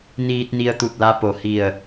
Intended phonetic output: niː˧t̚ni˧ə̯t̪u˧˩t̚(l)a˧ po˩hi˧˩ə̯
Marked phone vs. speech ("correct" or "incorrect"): correct